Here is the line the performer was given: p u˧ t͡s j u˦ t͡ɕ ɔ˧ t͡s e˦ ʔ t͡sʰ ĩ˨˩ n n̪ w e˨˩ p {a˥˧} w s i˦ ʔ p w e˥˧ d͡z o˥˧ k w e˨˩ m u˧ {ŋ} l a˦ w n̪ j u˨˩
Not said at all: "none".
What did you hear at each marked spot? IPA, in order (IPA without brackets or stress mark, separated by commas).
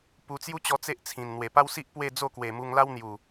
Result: a˦, ŋ